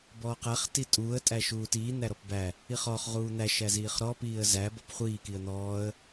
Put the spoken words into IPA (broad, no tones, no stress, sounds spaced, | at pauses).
b ɔː q æ χ t i tʼ uː ə̯ tʼ æ ʃ uː t iː n̪ æ ɾ ɔ p b æ | i χ ɔ χ ʁ uː n̪ æ ʃ æ z iː χ ɾ ɔː p iː ə̯ z æ b ɔ p χʷ iː k i ə̯ n̪ ɔː ə̯